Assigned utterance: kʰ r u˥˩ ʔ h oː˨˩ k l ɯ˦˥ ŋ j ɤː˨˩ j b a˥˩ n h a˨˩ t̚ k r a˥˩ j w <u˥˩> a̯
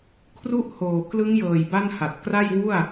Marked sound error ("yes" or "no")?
no